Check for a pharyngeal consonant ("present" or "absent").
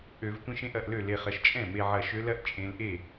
present